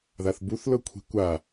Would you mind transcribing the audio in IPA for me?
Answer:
ð a θ b u θ l ɤ kʷʰ i̤ kʷ a

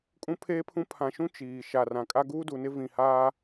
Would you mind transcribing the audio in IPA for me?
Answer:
kʼ ũ˦ pʰ eː˦ pʰ ũ˦ pʰ ã˨ ʃ ũ˦ t͡ʃ iː˨ ʃ a˨ r ã˨ kʼ a˦ ɡ uː˦ d u˨ n ɪ˦ v ĩ˨ h aː˦

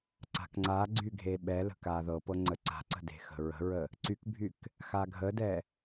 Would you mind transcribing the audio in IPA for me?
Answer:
ǀ a̤ k ŋ͡ǀ a ɡ͡ǀ y ɡʱ e ɓ ɛ l ə̤ k a ð ɤ p ɤ ŋ͡ǀ ə ǀ a̤ ǀ ə̤ d e̤ x ə̤ ɹ ə̤ ɹ ə | ǀ y k bʱ y k | x a ɡʱ ə d ɛ

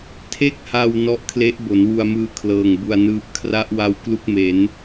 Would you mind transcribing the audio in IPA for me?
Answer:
tʰ e˥˩ k̚ h a˧ w n ɔ˦˥ ʔ kʰ l e˦˥ ʔ b o˩˦ n w u˧ a̯ m ɯː˧ kʰ l ɤː˨˩ ŋ b u˧ a̯ n ɯː˦˥ p̚ kʰ r a˦˥ ʔ w a˧ w k l u˦˥ k̚ m e˩˦ n

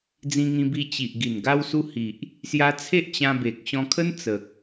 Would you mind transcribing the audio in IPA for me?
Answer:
d͡z ĩ˧ ŋ ĩ˧ b i˧ t͡ɕ i˨ ʔ ɡ i˨˩ n ɡ a˧ w s u˧ h i˨ ʔ | s j a˧ t͡sʰ e˦ ʔ t͡ɕ ã˧ b e˨ k̚ ɕ ɔ̃˧ kʰ ə˦ n t͡s ə˨ k̚

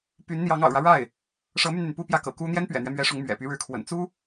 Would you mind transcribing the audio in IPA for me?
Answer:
p y˧˥ n n̪ j ɑ˧˥ ŋ ɑ̰˨˩ ʊ̯ ɻ ä˦ ɻ a˥˩ ɪ̯ | ʂ ɤ˧˥ m y˧ n n̪ y˩ n p u˥˧ p j ä˥˩ k ɤ̰˨˩ k u˥ n̪ j ɛ˥ n p ɥ ɛ̰˨˩ n̪ ɥ ɛ˦ m ɥ ɛ˧˥ ʂ ʊ˧˥ ŋ m ɥ ɛ̰˨˩ p y˧˥ ɻ ɻ̩˧˥ kʰ w ə̰˨˩ n t͡s u˥

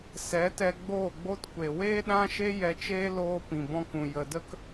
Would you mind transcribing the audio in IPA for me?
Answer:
s ɛ˨˦ t ɛ˧ ɡ͡b oː˦˨ ɡ͡b o˦ t kʷ e˨ w eː˦ ɗ ã˦ ʃ e˦ j ɛ˧ t͡ʃ eː˦ l oː˧ p ĩ˨ b ɔ̃˧ k ũ˨ j ə˨ d ə˦ k

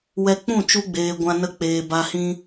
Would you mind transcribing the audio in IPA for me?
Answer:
w ɛ˧ k͡p ũ˦˨ t͡ʃ u˧ ɡ͡b eː˨ ɡʷ ã˧ n ə˧ k͡p eː˨ b a˧ h ĩ˦

